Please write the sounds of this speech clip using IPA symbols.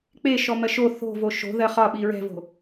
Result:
k͡p e ʃ ɔ m ɜ ʃ o θ o̤ v o ʃ o̤ ð ɜ χ ɒ ɓ i ɹ ɛ̤ v o̤

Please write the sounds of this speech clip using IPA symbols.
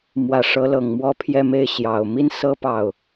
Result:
m w ä˨˩ ʂ ɤ˧˥ l ɤ˨˩ ŋ m w ɔ˥˧ pʰ j ɛ˥˧ m e˥˩ ɪ̯ ɕ j ɑ˨˩ ʊ̯ m i˥ n s ɤ˥ p ɑ˥˩ ʊ̯

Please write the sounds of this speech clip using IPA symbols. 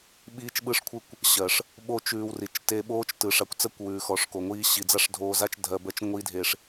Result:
ɓ iː˦ t͡ʃ ɓ ɯ˦ ʂ kʷʰ ɯ˦ kʷ | ɕ ɜ˨ ʂ | ɓ o˦ t͡ʃ ʉː˧ w r i˨ t͡ʃ t e˧ ɓ oː˦ t͡ʃ t ɯ˨ ʂ a˧ kʷ t͡s ɜ˦ kʷ w ʉː˨ x ɔ˨ ʂ k o˨ ŋʷ iː˦ ɕ i˨ d͡z a˦ ʂ dʱ oː˧ z a˦ t͡ʃ dʱ ɜ˧ b ɜ˦ t͡ʃ ŋʷ i˦ dʱ e˧ ʂ

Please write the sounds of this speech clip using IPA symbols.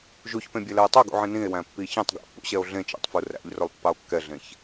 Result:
ʒ u ç p ẽ bʲ ɛ l ɛ e̯ tˤ œ ɡ ṵ ʕ ĩ n ĩ e̯ w æ̃ pː i ç ĩ tˤ ɡ æ̰ pː ṵ ɕ ɛ o̯ ɮ ẽ t͡ʃ æ̰ tˤ f u r æ̰ ʎ r ɵ lˠ pː ɑ o̯ kː ɛ ɮ ẽ ç

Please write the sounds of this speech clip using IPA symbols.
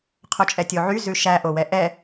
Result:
qʰ o t͡ʃʼ ɛ tʲ o ʕ y z ʉ ʃ æ ʔ o w ɛ ʔ ɛ

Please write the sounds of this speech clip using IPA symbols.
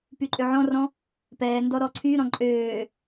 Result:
p y ǃʼ ø ʕ ɔ̃ r ɔ̃ | p ɛː n d ɔ ɾ ɔ ǀʰ y ɾ ɔ̃ ǃʼ øː

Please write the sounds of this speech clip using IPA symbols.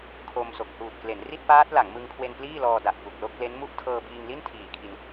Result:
kʰ o˧ m s o˨˩ k̚ h uː˨˩ t̚ k l e˩˦ n r i˥˩ t̚ p aː˦˥ t̚ l a˩˦ ŋ m ɯ˧ ŋ kʰ w e˧ n p l iː˥˩ l ɔː˧ d a˨˩ ʔ k u˨˩ k̚ l o˥˩ k̚ l e˦˥ n m u˥˩ ʔ tʰ ɤː˧ b iː˧ ŋ l i˥˩ n tʰ iː˨˩ kʰ i˧ n

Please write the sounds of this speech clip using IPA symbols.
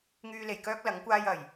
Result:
ŋ yː˧ l e˨˩ j k œː˥ k̚ l ɐ˨˥ ŋ kʷ aː˥ j ɐ˨˩ j

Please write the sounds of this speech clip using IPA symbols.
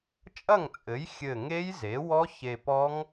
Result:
t͡ʃʼ ɐ˥˩ ŋ t͡sʼ ɘ˩˥ j xʲ ɘ˧˩ ŋ e˦˥ j z e˩˥ w ɔ˦˥ ç e˧ p ɔ˦˥ ŋ

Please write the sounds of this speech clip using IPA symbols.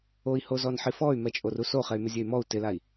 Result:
o i̯ h o z ɔ n ħ i f ɔ y̯ m ɛ t͡ʃʼ o r u s o χ ɛ y̯ m ɪ zʲ e y̯ m ɔ u̯ t ɪ l a i̯

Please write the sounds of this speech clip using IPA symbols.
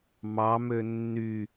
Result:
m ɑ m ø nː y

